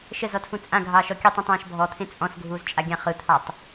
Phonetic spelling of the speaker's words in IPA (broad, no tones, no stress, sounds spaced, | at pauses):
ʃ ə z ɔ tʰ ũ t͡sʼ ã ɡʱ ɑː ʃ ɔ kʲ ɯ tˤ ũ tˤ ãː ʃ bʱ ɔ t̪ʰ ẽ t͡sʼ ɔ̃ s ɡʱ uː z t͡ʃʼ a ɡʲ ã χ ɯ t̪ʰ ɑ tˤ